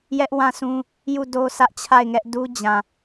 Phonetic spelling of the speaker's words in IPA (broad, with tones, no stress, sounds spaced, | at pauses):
j ɛ˦ ʔ w ã˦˨ sʰ ũ˦ | j u˦˨ d o˦ s ä˦ ʔ t͡ɕʰ a˦˨ ɪ̯ ŋ ɛ˦ ʔ d u˦ d͡ʑ ã˨